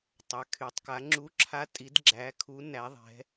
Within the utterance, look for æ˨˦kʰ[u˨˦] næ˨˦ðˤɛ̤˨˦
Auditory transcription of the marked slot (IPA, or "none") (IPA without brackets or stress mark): u˨˦